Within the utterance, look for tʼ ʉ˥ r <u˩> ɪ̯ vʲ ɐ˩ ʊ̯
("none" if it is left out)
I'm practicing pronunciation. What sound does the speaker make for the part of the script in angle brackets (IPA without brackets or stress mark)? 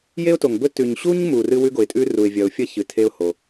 u˩